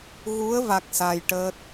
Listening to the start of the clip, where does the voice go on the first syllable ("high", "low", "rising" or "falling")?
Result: rising